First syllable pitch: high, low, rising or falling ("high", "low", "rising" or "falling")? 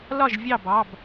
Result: falling